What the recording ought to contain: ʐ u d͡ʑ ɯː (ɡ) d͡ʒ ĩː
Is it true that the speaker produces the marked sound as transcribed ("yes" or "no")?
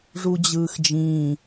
no